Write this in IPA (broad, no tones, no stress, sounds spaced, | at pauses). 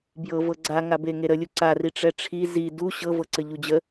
b j ɤ v ɤ ɡ͡ǀ a ŋ a b e ŋ e ɾ ə lʲ u ǀ a r i ʈ͡ʂ ɛ ʈ͡ʂʰ i z i d u ɕ ɤ v ɤ ǀ ə ʎ u d͡ʑ ə